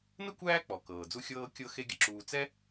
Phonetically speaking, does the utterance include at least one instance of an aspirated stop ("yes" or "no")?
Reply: no